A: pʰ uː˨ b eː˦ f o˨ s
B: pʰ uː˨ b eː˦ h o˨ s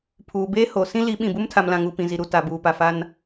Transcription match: B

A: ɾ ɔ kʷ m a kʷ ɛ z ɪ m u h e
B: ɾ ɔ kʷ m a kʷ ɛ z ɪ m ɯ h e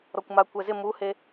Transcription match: A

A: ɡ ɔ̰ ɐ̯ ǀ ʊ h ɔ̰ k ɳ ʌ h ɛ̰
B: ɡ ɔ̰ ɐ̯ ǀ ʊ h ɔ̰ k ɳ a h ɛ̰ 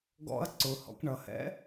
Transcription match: A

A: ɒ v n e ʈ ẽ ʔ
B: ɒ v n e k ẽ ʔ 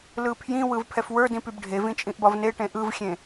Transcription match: A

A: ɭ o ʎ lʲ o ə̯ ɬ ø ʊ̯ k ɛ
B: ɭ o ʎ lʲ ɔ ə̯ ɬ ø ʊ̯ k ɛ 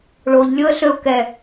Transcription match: A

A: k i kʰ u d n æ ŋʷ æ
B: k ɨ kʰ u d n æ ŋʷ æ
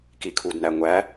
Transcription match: A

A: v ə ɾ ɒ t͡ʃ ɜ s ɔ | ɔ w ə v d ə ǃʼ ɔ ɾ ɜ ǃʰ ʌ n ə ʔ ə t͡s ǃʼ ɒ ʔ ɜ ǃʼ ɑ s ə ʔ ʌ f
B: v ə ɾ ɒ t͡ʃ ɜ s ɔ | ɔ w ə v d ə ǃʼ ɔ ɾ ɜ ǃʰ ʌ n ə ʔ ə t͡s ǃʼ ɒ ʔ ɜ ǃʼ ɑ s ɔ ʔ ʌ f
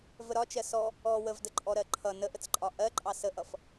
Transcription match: A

